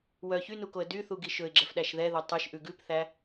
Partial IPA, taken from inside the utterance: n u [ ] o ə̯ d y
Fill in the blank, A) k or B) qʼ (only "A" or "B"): A